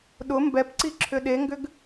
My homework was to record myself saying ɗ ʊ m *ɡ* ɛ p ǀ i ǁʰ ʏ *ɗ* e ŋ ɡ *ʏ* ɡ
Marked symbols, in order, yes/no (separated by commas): no, yes, yes